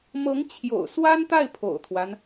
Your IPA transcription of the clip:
m ɤ˧˥ ŋ t͡ɕʰ j o̰˨˩ ʊ̯ s w a˥ n t̪ a˥˩ ɪ̯ pʰ o̰˨˩ ʊ̯ t̪ʰ w a˦ n

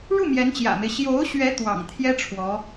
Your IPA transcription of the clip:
ɻ u˥˩ m j ɛ˧˥ n t͡ɕ j ä̰˨˩ m e˦ ɪ̯ ɕ j o˧˥ ʊ̯ ɕ ɥ ɛ˧˥ t̪ w ɑ̰˨˩ ŋ t̪ʰ j ɛ˥ ʈ͡ʂʰ w ɔ˧˥

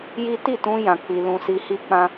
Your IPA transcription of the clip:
j i˦ t i˦˨ t ũ˧ j ã˧ k͡p i˧ l ũ˧ s i˧ h i˦ k͡p ã˦

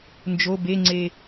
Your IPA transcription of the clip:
n d͡ʒ o b e ŋ͡ǀ e

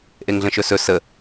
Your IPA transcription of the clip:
ʔ e ŋ ɮ ə̃ ʃ ɵ s ɵ s ə

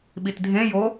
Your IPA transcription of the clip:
ɓ i t dʱ ẽ j o

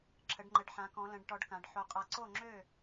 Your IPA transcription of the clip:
ǁʰ ə˨˥ ɖ ŋ͡ǃ ə˨˥ ɖ ħ ã˨˥ k ɔ̃˨˥ l ə̃˨˥ ɖ ʈ ɔ˨˥ ɖ k ã˩˧ ɖ ħ o˨˥ qʼ a˨˥ ǀ o˥˩ ŋ͡ǁ ø˥˩

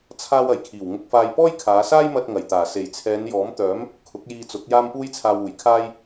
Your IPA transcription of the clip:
t͡sʰ aː˧ w ɐ˨˩ j kʰ iː˨˩ w ŋ ʊ˧ k̚ f aː˧ j p ɔː˥ j kʰ aː˨˧ s aː˥ j m ɐ˧ t̚ ŋ ɐ˨˩ j t̪ aː˨˩ s e˨˩ j t͡sʰ ɛː˨˧ n j ɔː˨˥ m t̪ œː˨˥ m | kʰ ʊ˨˥ k̚ j iː˧ t͡s ʊ˨˥ k̚ j aː˥ m p uː˥ j t͡sʰ aː˧ w uː˨˩ j kʰ aː˥ j

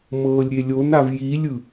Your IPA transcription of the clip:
m ɤː lʲ ɾʲ e lʲ o n a v j i lʲ ɯ

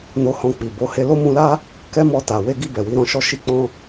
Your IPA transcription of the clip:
n o˧ h ɔ̃˧ k͡p i˨ b o˨˦ h e˧ l o˦ m ũ˧ l a˦ | k ɛ˦ m ɔ˧ t a˨ w e˧ ɡ i˧ b ɛ˨ w i˧ ɾ ɔ̃˧ ʃ ɔ˦ ʃ i˧ k͡p ɔ̃˧

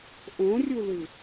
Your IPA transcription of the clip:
ʔ õ rʲ u l ɯ

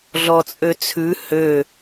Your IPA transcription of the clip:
ɮ ɔ t͡sʼ ø t͡sʰ ʉ h ø

